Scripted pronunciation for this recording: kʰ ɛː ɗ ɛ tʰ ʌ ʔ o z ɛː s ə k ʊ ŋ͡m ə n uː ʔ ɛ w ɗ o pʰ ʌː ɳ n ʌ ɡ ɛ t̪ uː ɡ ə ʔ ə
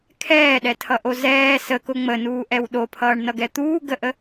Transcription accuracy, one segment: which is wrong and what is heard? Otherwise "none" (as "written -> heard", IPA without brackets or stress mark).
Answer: none